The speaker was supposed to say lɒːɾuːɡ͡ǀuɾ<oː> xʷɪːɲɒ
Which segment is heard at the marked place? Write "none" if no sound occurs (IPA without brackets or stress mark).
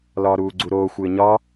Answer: oː